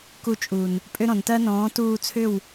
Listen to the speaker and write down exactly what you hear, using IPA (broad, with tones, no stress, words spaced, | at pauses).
ku˧t͡ʃʼu˨n | pʼʏ˦ɾɔ̃˨ntɜ˦ nɔ̃ː˨˦tuː˧t͡sʰʏ˦˨w